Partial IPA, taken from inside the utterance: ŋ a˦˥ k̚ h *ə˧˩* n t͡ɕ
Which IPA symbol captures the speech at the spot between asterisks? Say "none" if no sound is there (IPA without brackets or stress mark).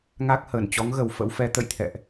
əː˧˩